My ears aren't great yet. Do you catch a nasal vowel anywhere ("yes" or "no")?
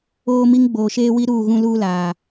yes